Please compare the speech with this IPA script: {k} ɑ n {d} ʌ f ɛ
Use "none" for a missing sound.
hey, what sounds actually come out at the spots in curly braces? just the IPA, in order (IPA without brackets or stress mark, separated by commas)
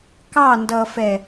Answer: k, d